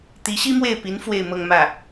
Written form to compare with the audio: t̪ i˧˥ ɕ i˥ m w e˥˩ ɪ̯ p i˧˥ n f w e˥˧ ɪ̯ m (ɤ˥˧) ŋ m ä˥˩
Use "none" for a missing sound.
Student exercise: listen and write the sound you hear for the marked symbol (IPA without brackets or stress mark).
ɤ˥˧